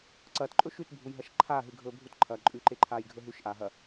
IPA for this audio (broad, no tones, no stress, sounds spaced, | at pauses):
ǀ ɐː t ǃʼ ɵ ʃ ʉ t bʱ u j ɦ ɐ ʃ ǃʰ aː ɦ ɨ ɡʱ ɵː bʱ u t ǃʰ ɐː ǃʼ ʉ ǃ e ǃʰ aː j ɡʱ ɵ ɦ ʉ ʃ ʔ aː ɦ ɐ